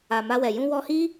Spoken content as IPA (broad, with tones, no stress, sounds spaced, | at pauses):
a˨ m a˧ w ɛ˨ j ũ˧ w ɔ˧ h i˦